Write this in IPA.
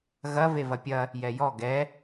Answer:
ɣ ɐ v e v ɐ pʲ ɐ | j ɛ j ɔ ɡ ɛ

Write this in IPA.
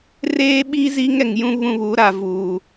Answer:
r eː˦ ɓ i˦ z i˦ ŋ ɛ˨ ŋ j ũ˦ β ũ˦ β u˨˦ ɾ a˨ v uː˨

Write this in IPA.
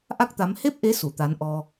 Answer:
ʔ a˦˥ k̚ t̪ a˨˦ m h e˦˥ p̚ ʔ e˨˦ s u˧˩ t̪ a˨˦ n ʔ ɔ˧

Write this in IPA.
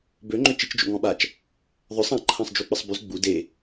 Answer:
b ø ŋ͡ǃ ø t͡ʃ i t͡ʃ d͡ʒ o̰ ŋ ɔ̃ ɓ a t͡ʃ | ðˤ œ sˤ ã ǃʰ ã sˤ d͡ʒ u k͡p ə sˤ b y z ɡ͡b u d e

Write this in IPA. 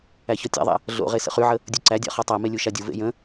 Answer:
æ ç ɔ tʲ a̰ ðˤ a̰ | ɮ o̰ ʁ e s ə̰ χ y ʕ ə | dʲ u ǀ æ dʲ a̰ χ ɔ tˤ a m e lʲ u ʃ a dʲ u v ḛ j ə̃

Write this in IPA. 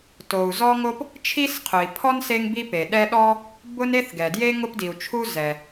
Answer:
t o˩ u̯ z ɔ˥ ŋ o˥ p | t͡ʃʰ i˥ s qʰ ʊ˩ i̯ pʰ ɔ˥ n s e˥ ŋ b i˥ p e˩ ɗ ɛ˥ ɗ ɔ˥ | b ʊ˥ n e˥ θ ɡ ɛ˩ d j e˥ ŋ ʊ˥ p d i˩ u̯ t͡ʃʰ u˥ z ɛ˩

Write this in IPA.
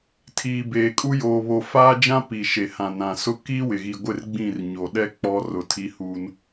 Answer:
tʰ iː˨ b eː˨ kʼ u˦ j oː˨ β o˨ f aː˦ d͡ʒ ã˦ p i˨ ʃ e˨ h ã˨ n ã˨ s ʊ˦ k iː˦ w ɪ˨ ɣ i˨ ɡʷ ɪ˦˨ r ɡ͡b ĩ˦˨ r ɲ o˨ ɗ ɛ˦ k͡p ɔ˦ r ʊ˨ tʰ i˦ h uː˦ n

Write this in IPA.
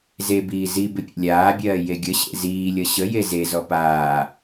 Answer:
z e b iː z i b ɪ pʲ ḛ lʲ aː bʲ ɜː j e ɡʲ ə ɕ ḛ z iː lʲ ʌ ɕ ə j e z e z ɔ p aː

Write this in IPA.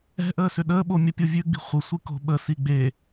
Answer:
ɛ̤ ʔ əː s ʏ ɗ əː ɓ o mʲ ə pʲ o vʲ ʉ ɡ͡b i̤ χʷ ə sʷ i k o̤ ɓ ə s i ɡ͡b e

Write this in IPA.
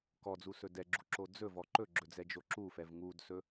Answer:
k ɔ d͡z u s ɵ d ɛ ɡ͡ǁ u ǁ o d͡z ɵ v ɔ ǃ ɵ ɡ͡ǁ ɵ d͡z ɛ d͡ʒ o ǁ u f ɛ v ŋ u d s ɵ

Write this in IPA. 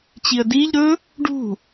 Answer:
t͡ɕ i ə̯ d i ʎ ɾ ɵ | ɖ ṳ

